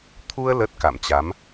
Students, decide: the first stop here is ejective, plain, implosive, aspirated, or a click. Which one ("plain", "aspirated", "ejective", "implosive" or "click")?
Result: aspirated